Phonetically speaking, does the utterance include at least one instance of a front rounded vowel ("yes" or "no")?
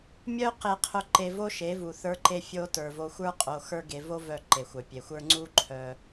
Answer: yes